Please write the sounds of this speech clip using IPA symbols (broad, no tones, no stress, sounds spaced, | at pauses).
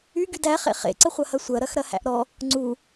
y ɡ y d æ χ ḛ χ ḛ ǀ ə χʷ ɐ h ɐ sʷ ɐ ɾ ɐ x ɾ ɐ h æ̰ ʔ ɾ ɔ | ŋ͡ǀ u